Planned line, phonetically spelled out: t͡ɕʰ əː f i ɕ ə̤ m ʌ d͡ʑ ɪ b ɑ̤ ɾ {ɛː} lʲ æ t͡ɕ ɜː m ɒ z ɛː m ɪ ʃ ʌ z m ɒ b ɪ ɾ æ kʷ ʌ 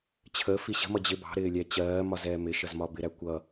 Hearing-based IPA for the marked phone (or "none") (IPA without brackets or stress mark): ɪː